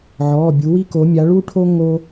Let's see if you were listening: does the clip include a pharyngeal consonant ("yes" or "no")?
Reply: yes